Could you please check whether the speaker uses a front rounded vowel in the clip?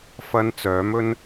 yes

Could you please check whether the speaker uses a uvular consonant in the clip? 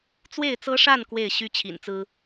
no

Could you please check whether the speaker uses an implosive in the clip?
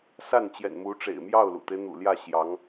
no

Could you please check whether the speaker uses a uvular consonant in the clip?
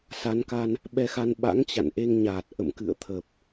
no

